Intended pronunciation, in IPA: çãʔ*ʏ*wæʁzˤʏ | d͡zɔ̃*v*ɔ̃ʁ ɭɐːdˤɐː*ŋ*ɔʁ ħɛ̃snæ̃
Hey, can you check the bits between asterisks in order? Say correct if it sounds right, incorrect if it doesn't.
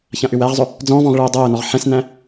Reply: correct, correct, incorrect: n

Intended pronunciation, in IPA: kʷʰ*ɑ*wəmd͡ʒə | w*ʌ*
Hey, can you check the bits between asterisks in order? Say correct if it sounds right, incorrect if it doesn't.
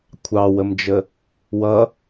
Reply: correct, correct

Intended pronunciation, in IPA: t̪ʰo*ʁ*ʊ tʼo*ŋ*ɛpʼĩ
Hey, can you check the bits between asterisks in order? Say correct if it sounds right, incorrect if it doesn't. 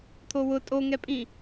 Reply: incorrect: w, correct

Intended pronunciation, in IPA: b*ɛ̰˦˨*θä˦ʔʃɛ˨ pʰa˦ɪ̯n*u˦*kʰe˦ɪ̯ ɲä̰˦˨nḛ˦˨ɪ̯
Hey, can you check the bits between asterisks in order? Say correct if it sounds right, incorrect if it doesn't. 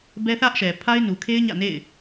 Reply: incorrect: ɛ˦, incorrect: u˨

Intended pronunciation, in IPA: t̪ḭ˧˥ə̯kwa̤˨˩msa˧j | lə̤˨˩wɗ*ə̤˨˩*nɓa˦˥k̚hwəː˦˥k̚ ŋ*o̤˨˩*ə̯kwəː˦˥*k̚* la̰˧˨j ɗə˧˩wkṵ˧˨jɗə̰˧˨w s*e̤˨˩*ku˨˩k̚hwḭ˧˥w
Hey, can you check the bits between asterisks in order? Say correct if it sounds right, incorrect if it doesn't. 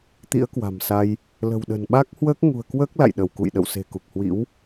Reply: correct, incorrect: ṳ˨˩, correct, correct

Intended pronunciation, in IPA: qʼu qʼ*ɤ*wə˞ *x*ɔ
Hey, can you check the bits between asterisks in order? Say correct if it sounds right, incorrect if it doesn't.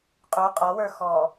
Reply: incorrect: ɔ, correct

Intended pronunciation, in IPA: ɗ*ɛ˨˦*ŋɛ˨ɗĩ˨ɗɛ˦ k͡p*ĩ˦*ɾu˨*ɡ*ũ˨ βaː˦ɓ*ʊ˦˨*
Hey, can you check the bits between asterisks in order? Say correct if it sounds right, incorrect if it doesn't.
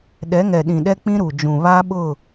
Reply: correct, correct, incorrect: d͡ʒ, correct

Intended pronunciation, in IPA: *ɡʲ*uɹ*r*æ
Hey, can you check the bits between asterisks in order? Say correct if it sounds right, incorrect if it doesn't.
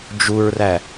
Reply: incorrect: d͡ʒ, correct

